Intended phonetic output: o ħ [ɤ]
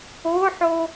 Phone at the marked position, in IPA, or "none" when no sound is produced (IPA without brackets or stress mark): o